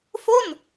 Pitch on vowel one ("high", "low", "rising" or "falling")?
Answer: falling